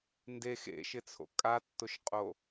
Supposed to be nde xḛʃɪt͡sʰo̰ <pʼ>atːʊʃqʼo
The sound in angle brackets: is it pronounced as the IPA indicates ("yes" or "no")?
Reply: no